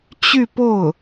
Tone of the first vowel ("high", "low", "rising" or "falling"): falling